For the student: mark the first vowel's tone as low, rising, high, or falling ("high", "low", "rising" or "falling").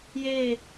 falling